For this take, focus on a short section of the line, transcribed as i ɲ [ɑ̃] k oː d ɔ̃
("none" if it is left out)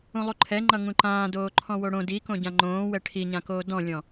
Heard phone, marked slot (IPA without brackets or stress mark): ã